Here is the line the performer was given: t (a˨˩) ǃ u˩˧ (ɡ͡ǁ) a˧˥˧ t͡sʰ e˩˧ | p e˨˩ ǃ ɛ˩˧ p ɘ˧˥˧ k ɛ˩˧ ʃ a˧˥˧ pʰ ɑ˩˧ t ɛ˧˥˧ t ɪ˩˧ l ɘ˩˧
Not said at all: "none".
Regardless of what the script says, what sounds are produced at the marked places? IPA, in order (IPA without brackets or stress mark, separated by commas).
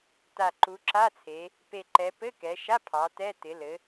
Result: a˨˩, ǁ